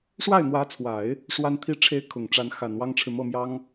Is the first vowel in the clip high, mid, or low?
low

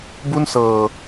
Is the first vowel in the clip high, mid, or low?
high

